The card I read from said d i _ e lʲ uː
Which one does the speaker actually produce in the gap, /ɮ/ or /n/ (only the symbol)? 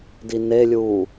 n